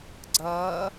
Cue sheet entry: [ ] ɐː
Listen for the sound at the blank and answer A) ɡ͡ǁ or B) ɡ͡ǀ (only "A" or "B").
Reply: B